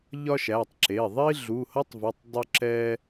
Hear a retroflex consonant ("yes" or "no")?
no